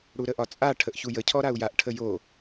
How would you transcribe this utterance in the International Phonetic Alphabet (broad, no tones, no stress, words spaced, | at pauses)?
ɽuɾəʔɒt͡sʼa ʈʰəʔçujə cʰɔɾau̯jaʔ ʈʰəjo